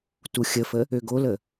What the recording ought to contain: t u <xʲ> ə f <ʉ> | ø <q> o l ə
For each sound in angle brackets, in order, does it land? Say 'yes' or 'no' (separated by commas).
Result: yes, no, no